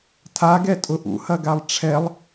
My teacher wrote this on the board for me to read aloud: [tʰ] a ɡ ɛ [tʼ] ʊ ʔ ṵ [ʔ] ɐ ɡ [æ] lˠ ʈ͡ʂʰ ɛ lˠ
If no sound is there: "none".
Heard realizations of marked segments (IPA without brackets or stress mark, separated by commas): tʰ, tʼ, h, a